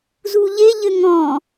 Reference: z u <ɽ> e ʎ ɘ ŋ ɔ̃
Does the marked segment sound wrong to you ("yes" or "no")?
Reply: yes